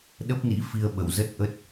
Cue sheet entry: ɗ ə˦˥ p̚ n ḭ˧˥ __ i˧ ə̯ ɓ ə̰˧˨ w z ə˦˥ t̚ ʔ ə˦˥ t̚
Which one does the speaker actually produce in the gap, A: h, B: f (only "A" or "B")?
B